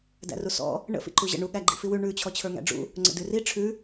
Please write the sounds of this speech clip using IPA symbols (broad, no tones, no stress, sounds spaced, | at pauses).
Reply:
d æ̰ r u s ɔ̰ | ɳ ə̰ f ḭ ǃ u ʑ ə̰ ɳ u ɠ æ ɡ͡ǃ ḭ f i w ʉ ɳ ʉ t͡ɕʰ ɔ t͡ɕʰ ə˞ ŋ æ̰ ɖ͡ʐ ṵ | ŋ͡ǀ ə̰ d ʉ r i ʈ͡ʂʰ ʉ